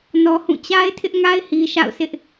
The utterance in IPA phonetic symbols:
nɔ˦hũ˦˨ t͡ɕa˦ɪ̯tʰɪ˦ʔŋa˦ɪ̯ hi˦ʃa̰˦˨ʊ̯sɪ˦ʔ

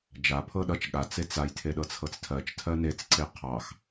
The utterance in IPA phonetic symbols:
d͡ʒa pʰɤɗʌt͡ʃ ɠa t͡set͡saj tʰeɗɤt͡sʰɤt͡stʰɜt͡ʃ tʰɜnet͡s ǀeqʰɑx

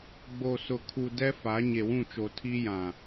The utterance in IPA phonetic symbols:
ɡ͡bo˨sʊ˨kʰu˨ dɛ˦fa˨˦ ɲe˨wũ˦˨t͡ʃo˨ tʰi˦jã˨

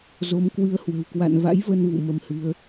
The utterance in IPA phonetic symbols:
zo˨˦mkwɨ˧ə̯hwə̤˨˩w kwa̰˧˨nva̰˧˥jvə˧n vṵ˧˨mə˧mhɨ˨˦ə̯

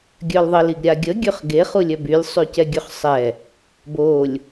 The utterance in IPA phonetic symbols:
ɡʲœlðˤəl iɡɾʲaɡʲə ɡʲøχɡe χulʲœbylʲ sˤycɛɡʲøχsˤɛ | bolʲ

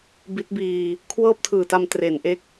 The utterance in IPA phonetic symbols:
bi˦˥t̚biː˧ | kʰwɤː˥˩p̚tʰɯː˨˩ta˧m tre˩˦nʔe˦˥k̚

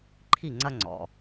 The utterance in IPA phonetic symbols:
ǃʰi˥˨ŋ͡ǀɐ˥ŋ͡ǀɔ̰˩˧˩

